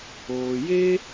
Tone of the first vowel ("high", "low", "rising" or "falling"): low